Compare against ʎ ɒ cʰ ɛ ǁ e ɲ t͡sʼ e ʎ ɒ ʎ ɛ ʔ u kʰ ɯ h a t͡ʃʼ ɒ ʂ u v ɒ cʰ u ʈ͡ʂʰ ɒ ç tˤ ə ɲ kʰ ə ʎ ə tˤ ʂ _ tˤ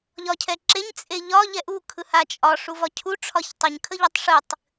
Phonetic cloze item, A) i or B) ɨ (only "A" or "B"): B